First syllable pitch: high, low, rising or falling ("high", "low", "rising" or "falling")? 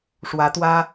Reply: rising